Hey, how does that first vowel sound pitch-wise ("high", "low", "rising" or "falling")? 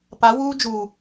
rising